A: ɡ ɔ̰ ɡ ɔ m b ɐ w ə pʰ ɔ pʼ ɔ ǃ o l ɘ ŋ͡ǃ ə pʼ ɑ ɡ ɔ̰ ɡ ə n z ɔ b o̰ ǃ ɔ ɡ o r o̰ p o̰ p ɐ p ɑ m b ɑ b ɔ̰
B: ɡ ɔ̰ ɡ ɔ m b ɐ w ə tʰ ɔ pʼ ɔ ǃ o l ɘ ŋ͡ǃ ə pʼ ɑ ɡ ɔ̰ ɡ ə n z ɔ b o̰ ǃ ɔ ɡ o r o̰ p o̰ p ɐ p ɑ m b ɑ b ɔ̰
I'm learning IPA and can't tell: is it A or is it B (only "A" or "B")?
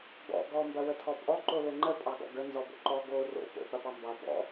B